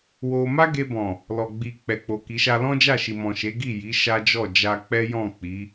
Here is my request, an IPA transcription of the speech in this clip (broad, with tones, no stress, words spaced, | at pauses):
wo˧ ma˦ɡe˧bɔ̃˨ | lɔ˨ɡ͡bi˨ k͡pɛ˨k͡po˨ki˨˦ ʃa˧lɔ̃˦d͡ʒa˦˨ʃi˨ mɔ̃˨ʃe˨˦ɡi˦˨ji˨˦ ʃa˦d͡ʒɔ˦˨ d͡ʒa˧k͡pɛ˦jɔ̃˦˨ k͡pi˨˦